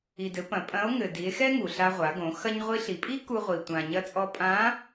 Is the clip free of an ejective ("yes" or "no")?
no